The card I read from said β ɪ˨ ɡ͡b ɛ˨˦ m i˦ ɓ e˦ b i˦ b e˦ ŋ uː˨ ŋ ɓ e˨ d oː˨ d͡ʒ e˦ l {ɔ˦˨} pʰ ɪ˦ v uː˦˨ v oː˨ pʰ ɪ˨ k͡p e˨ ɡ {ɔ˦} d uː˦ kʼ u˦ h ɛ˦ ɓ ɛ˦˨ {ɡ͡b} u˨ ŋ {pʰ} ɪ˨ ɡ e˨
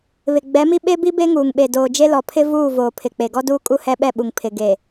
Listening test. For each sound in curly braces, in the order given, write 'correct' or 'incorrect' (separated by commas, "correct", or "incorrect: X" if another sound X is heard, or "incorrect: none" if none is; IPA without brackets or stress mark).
incorrect: ɔ˨, correct, incorrect: ɓ, correct